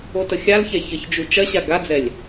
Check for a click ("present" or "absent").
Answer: absent